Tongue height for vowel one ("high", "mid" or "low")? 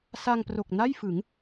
low